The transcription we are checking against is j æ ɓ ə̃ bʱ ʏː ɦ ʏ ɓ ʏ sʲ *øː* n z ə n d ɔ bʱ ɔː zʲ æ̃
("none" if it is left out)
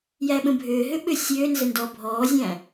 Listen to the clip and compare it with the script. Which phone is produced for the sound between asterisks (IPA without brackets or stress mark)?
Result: øː